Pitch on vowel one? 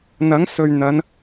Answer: rising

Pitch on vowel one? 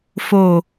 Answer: low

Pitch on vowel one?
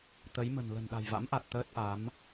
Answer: rising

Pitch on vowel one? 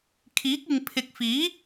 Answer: rising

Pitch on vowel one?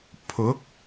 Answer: rising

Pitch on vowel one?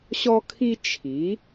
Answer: high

